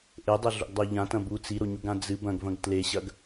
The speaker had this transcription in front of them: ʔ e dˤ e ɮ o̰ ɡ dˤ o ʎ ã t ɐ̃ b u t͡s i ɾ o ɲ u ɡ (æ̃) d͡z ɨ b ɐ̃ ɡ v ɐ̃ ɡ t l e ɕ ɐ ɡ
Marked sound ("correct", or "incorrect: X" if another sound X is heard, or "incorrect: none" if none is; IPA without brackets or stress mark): incorrect: ã